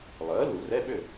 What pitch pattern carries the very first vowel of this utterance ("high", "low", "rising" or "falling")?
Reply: rising